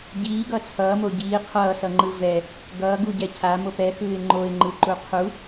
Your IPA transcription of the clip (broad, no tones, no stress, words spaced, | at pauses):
ɟiːɡʌ t͡sʰʌːmo ɟiː qʰʌːsʌŋ͡ǃɯ vɛ | ɡʌːɡuɟɛ cʰamop ɛxɯːɪ̯ ŋ͡ǃoɪ̯ŋ͡ǃɯǃu qʰu